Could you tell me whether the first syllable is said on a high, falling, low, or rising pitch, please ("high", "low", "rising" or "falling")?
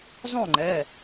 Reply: falling